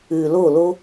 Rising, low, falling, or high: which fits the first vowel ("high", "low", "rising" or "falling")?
low